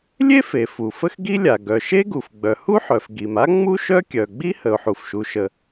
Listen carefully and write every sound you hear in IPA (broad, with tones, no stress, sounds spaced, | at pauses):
lʲ e˥ f e˩ f u˩ f ə˥ x ɡ i˥ lʲ a˩ ɡ œ˩ ʃ e˥ ɡ u˩ f ɡ͡b œ˩ h u˥ ħ œ˩ f ɡ i˩ m a˥ ŋ͡m u˥ ʃ œ˥ kʲ œ˩ ɡ͡b i˥ h ə˩ ʊ̯ ħ u˩ f ʃ u˩ ʃ ə˩